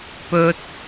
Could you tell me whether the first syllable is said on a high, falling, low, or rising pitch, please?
high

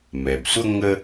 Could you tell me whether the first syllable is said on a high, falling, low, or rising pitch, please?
low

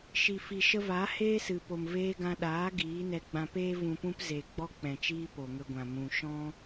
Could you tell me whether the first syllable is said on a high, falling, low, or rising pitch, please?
low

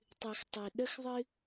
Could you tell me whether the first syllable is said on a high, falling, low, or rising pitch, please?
low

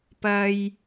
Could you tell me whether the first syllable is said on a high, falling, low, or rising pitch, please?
high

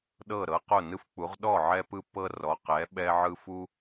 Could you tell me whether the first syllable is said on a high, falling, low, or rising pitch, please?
falling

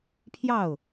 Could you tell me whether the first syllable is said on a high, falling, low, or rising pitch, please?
falling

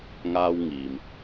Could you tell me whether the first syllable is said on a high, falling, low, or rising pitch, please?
high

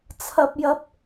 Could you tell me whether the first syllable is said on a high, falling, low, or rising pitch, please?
high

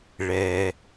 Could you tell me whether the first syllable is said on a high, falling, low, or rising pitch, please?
low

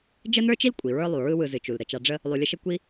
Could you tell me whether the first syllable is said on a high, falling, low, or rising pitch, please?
high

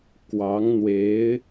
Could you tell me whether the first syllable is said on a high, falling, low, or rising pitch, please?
rising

